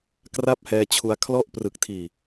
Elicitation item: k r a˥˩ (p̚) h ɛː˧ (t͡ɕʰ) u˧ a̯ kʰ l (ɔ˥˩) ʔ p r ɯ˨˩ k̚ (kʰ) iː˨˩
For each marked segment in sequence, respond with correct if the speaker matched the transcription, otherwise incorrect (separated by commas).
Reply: correct, correct, correct, incorrect